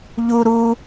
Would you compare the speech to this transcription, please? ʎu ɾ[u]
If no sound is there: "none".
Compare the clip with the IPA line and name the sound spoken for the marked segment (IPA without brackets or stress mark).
u